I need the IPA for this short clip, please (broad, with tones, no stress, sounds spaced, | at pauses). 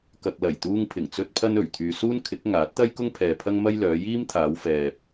k ɐ˨ k̚ l ɐ˨˩ j t̪ uː˧ ŋ pʰ ɪ˨˩ ŋ t͡s ɵ˥ t̚ pʰ ɐ˥ n ɵ˨˩ ɥ t̪ʰ yː˨ s uː˥ n kʰ ɪ˨˥ k̚ ŋ aː˨˥ t̚ t̪ ɐ˥ j k ʊ˥ ŋ pʰ ɛː˨ pʰ ɐ˥ ŋ m ɐ˥ j l œː˨˧ j iː˥ m t̪ʰ aː˨˧ w f ɛː˨ p̚